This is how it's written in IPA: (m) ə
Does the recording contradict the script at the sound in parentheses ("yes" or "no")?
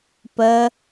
yes